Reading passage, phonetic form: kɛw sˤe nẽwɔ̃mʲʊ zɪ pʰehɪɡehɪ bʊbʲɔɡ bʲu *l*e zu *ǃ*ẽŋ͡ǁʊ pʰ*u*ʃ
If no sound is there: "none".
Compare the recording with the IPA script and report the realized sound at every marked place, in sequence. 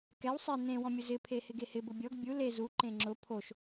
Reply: l, ǃ, o

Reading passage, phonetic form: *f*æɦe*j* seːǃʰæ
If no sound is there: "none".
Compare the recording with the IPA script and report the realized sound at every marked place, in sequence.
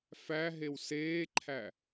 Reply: f, w

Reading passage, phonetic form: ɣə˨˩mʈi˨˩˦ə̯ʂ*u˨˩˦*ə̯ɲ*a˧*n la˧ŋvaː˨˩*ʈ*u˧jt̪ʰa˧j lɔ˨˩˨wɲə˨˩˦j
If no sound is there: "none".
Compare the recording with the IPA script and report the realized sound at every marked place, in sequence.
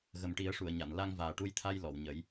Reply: u˨˩˨, a˨˩˨, ʈ

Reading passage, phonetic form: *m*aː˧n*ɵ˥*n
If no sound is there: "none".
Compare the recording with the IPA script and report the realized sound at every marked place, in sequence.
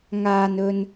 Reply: ŋ, ɵ˧

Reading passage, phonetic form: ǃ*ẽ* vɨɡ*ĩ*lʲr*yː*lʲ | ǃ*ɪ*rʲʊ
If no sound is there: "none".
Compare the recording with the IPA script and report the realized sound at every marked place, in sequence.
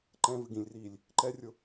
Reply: ɛ̃, ĩ, iː, ɛ

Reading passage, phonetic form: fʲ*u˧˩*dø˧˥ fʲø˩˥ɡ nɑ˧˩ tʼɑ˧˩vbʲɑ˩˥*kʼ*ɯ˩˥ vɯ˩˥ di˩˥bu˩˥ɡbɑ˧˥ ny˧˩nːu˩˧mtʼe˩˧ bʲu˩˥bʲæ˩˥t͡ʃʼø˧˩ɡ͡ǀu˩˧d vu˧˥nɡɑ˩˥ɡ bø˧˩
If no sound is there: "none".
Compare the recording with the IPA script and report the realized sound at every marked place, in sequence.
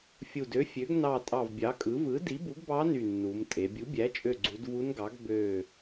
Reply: u˧˩, kʼ

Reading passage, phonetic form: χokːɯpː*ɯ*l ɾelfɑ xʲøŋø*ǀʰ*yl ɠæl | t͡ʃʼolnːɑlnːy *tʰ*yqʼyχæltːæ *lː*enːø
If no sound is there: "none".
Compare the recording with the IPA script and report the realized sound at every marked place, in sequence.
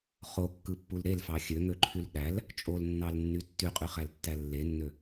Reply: u, ǃʰ, tː, lː

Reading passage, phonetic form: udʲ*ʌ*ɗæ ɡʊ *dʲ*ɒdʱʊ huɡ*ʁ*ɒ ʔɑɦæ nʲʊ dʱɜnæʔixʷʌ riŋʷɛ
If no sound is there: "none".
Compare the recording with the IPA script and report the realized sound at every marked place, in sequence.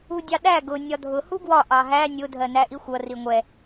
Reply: ɑ, nʲ, w

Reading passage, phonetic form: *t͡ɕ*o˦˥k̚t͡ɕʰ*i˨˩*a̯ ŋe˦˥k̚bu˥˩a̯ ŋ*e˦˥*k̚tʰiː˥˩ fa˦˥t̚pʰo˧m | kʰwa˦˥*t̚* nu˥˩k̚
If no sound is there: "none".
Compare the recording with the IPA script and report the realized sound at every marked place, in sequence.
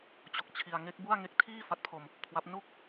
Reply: t͡ɕ, i˧, e˦˥, p̚

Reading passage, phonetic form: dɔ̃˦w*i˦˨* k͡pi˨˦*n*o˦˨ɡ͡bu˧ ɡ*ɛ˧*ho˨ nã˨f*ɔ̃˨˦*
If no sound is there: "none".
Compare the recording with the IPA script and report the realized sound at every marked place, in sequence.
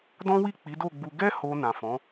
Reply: i˦˨, d, ɛ˧, ɔ̃˨˦

